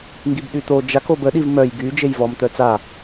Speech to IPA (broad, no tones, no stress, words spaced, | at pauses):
ŋɡibɗyt̪o d͡ʒako bəɗiv mœj ɡy d͡ʒejvɔm t̪œt͡sa